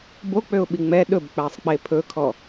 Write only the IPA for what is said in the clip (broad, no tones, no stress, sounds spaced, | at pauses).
b o k͡p ø ʊ̯ ɓ i ŋ͡m ɛ ɗ ɵ b k͡p æ sˤ k͡p e pʰ ɵ kʰ ɔ